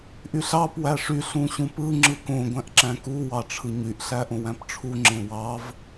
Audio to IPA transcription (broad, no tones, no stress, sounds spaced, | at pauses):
ʔ y ɬ ɑ p w æ ʂ y ɬ ũ ɕ ũ p ɯ ŋ͡ǁ ɯ k õ ɡʷ æ̃ ʔ ǁ æ̃ k u w ɑ ʈ͡ʂʰ ɯ ɲ y ʔ ɬ æ ʔ õ w æ̃ p ʈ͡ʂʰ u ŋ͡ǁ ẽ w ɑ v